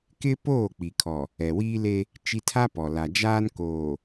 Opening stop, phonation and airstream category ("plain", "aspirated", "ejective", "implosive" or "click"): plain